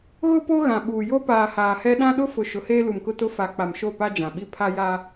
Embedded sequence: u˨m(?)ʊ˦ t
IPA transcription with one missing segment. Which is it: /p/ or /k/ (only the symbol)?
k